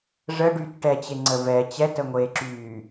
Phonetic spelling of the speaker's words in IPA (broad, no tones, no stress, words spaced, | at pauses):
ʐəɖyːt ʈɛt͡ɕeŋ͡ǀə vɛ t͡ɕɛtəŋʷeːǁyː